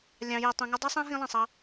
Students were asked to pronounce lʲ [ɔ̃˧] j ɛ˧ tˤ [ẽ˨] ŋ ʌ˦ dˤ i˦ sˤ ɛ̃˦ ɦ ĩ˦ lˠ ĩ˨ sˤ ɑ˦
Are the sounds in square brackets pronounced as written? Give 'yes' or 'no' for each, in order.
no, no

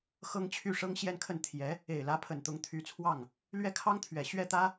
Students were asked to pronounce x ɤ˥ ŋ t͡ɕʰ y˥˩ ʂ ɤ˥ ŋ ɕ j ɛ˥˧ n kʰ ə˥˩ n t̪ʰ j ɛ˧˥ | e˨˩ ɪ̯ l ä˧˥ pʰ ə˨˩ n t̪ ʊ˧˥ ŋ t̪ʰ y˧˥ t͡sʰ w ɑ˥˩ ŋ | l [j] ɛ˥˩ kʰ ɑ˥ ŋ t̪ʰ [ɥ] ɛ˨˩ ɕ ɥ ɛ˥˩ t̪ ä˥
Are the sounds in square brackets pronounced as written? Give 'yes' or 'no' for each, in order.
no, yes

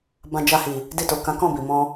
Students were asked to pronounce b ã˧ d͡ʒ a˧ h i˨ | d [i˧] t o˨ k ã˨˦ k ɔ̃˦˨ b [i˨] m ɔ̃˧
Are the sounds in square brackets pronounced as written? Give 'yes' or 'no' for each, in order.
yes, yes

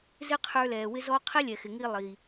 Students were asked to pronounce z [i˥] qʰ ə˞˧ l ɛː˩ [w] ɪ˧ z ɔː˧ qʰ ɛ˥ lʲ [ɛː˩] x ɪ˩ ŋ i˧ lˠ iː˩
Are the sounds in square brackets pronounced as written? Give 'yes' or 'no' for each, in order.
no, yes, no

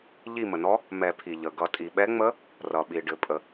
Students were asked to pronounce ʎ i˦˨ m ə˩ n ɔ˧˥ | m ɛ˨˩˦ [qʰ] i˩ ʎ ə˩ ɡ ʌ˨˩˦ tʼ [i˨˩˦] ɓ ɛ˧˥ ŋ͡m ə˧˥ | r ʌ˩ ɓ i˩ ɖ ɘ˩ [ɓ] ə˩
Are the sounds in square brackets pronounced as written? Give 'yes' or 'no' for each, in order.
no, no, no

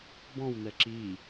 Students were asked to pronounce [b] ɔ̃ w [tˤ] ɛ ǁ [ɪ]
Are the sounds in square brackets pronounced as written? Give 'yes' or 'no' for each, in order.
yes, no, no

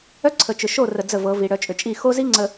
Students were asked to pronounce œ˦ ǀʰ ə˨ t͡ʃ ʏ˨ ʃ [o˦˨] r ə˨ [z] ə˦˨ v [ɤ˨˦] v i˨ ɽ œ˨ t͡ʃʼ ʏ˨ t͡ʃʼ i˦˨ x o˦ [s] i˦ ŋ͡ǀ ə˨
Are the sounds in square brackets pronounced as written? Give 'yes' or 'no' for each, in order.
yes, no, yes, no

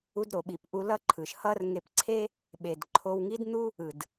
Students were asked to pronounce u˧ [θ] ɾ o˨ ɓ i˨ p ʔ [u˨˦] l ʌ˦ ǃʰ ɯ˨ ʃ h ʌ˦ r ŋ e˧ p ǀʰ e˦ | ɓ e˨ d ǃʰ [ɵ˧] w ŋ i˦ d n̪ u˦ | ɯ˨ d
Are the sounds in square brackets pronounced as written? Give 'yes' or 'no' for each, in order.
no, no, no

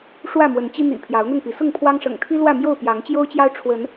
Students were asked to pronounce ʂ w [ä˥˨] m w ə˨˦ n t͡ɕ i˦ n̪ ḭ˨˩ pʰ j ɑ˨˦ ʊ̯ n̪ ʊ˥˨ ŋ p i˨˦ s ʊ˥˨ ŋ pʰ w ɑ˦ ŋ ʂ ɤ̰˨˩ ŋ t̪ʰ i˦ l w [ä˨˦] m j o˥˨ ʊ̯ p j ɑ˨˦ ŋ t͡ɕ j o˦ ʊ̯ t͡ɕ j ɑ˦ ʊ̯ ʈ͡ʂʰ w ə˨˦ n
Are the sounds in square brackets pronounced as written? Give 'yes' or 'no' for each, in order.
yes, no

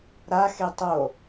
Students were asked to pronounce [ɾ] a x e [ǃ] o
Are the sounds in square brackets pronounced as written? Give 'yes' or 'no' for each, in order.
yes, no

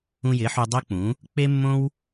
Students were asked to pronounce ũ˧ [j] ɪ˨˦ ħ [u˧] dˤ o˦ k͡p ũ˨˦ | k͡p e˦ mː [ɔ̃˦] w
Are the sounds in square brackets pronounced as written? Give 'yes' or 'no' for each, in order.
yes, yes, no

